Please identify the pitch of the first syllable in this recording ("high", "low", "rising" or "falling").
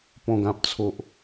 low